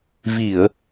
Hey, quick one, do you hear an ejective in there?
no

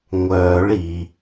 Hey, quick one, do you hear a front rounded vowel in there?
yes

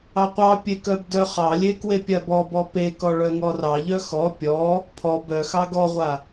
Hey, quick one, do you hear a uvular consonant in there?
yes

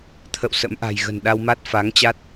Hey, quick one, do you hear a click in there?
no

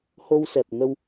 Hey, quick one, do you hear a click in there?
no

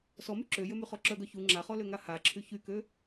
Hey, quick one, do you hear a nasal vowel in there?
no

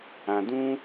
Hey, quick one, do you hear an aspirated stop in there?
no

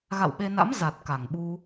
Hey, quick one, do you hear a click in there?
no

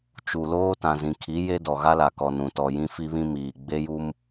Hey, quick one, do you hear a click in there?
no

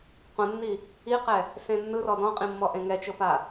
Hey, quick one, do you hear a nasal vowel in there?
yes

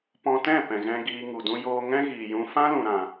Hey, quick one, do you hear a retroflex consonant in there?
no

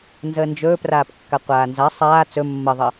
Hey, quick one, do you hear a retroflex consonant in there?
no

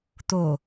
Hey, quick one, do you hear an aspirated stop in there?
no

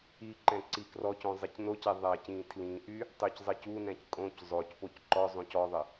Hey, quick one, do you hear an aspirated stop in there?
yes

